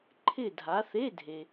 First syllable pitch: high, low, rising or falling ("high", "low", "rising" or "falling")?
falling